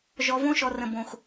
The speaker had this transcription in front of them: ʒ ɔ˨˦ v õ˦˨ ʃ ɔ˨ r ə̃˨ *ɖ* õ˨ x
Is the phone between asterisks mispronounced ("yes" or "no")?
yes